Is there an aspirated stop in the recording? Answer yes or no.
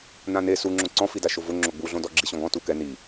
no